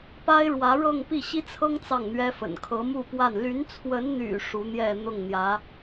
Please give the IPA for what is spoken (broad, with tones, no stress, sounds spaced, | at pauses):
p a˥ ɪ̯ ɻ w ä˧˥ ɻ ɤ˥˧ ŋ p i˥˩ ɕ i˥ t͡sʰ ɤ˥ ŋ t͡s ɑ˥˩ ŋ n̪ ɥ ɛ˥ f ə̰˨˩ n kʰ ɤ˧˥ m u˥˧ p w a˥˩ n l y˧˥ n t͡sʰ w ə˧˥ n n̪ y̰˨˩ ʂ u˧˥ n̪ j ɛ˥˧ n̪ ʊ˥˩ ŋ n̪ j ä˧˥